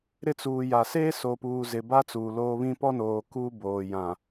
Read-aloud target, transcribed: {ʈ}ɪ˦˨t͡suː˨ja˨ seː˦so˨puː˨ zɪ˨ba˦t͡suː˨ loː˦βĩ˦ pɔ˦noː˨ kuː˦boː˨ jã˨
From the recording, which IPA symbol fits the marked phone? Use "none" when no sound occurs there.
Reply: ɾ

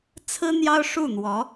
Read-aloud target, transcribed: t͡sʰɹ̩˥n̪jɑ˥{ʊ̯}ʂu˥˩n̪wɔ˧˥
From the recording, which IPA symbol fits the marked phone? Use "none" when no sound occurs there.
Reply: ʊ̯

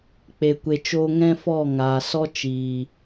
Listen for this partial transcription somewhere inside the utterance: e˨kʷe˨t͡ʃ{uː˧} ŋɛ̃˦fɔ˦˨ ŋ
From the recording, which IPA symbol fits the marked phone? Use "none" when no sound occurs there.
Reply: oː˧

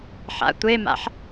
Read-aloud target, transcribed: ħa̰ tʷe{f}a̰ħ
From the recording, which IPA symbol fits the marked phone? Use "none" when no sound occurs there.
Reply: m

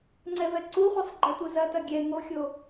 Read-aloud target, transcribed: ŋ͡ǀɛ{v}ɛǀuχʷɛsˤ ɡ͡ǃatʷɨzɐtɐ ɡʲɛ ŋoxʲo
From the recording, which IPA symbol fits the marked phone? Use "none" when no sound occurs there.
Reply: v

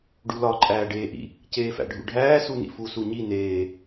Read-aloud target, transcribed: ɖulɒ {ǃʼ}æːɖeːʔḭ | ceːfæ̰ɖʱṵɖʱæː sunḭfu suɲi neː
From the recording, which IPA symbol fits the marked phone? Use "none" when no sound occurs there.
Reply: ǃʼ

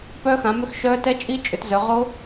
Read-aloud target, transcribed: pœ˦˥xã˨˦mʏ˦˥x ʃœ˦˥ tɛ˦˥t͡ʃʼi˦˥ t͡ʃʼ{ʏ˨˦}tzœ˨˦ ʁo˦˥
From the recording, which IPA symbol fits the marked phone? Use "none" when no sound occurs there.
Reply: ʏ˨˦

